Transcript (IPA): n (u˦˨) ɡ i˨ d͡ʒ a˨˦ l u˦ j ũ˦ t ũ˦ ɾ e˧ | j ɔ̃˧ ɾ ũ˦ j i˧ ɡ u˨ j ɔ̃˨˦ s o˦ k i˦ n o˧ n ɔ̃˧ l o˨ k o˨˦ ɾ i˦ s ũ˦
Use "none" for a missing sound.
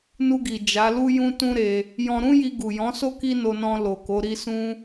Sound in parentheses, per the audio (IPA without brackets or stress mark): u˧